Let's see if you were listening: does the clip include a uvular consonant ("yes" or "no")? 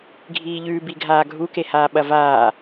no